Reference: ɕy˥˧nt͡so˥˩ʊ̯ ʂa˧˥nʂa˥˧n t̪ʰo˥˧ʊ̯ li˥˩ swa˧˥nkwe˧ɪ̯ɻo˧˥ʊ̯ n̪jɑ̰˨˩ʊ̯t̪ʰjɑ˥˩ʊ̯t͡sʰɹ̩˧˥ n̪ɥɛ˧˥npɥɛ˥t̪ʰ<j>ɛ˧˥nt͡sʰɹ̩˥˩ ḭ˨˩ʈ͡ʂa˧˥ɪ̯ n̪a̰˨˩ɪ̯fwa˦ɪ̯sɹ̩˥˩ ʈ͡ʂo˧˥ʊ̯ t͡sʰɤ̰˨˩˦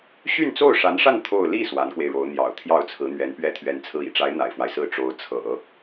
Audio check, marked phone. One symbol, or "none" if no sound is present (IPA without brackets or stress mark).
ɥ